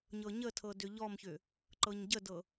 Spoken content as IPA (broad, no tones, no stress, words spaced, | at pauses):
ɲɤɲətʰɤ dʏʎɔmçʏ | ǃɤɲɟədɤ